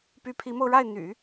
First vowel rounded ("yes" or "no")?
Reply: yes